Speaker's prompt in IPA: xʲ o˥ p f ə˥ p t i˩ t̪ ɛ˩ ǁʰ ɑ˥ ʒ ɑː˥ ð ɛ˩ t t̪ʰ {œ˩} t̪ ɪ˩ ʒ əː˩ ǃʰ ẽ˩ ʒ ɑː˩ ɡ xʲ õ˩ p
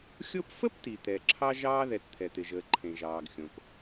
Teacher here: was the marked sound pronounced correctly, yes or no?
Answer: no